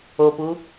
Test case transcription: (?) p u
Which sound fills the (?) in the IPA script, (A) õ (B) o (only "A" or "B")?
B